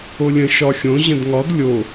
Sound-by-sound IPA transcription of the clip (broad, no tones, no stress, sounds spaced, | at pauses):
o lʲ ə̃ ʃ ɒ xʲ õ ʑ ə̃ d ŋ ɒ d lʲ o